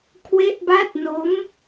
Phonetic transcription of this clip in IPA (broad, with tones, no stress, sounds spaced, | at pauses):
kʰ w e˦˥ ʔ b a˦˥ t̚ n o˦˥ m